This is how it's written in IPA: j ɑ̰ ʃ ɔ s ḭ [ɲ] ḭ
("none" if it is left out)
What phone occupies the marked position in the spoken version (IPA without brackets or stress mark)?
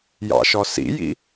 j